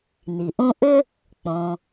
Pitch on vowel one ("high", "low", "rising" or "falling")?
low